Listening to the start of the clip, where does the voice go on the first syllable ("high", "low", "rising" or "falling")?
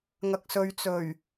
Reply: low